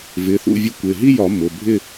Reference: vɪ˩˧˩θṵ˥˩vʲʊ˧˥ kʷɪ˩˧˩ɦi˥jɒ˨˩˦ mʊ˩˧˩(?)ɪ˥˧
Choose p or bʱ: bʱ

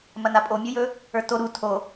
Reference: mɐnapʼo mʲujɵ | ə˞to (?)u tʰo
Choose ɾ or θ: ɾ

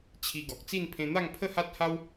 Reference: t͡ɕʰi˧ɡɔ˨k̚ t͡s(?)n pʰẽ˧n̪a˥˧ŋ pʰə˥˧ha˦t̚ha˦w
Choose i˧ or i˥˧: i˥˧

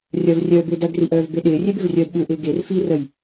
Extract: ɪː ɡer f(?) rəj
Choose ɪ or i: i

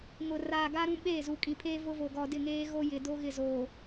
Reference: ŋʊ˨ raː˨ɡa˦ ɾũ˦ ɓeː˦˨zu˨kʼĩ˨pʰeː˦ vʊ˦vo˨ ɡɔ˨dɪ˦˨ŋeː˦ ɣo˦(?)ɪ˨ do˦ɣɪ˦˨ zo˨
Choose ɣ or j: j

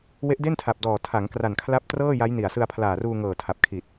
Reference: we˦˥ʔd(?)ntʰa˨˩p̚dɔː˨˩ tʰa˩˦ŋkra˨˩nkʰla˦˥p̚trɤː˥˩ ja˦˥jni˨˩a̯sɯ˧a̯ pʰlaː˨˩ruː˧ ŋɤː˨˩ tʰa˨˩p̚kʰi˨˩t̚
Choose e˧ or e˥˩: e˥˩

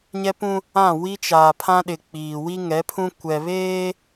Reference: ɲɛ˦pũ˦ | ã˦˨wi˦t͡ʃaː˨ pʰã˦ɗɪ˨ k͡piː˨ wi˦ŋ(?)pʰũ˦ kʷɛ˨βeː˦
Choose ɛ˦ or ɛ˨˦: ɛ˨˦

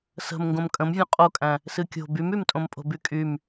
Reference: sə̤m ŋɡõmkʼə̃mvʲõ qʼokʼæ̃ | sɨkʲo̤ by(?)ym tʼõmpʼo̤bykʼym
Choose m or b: m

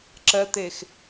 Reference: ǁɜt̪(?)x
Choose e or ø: e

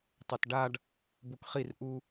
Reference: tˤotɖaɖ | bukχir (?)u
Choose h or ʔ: ʔ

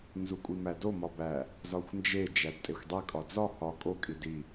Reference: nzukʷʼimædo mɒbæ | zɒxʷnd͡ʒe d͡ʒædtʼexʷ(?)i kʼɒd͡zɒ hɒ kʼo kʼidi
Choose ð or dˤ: dˤ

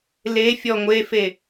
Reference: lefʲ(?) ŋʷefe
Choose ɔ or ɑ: ɔ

